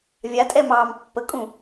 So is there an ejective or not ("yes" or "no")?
yes